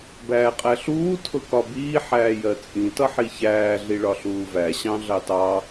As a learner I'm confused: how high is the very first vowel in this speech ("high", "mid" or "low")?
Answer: low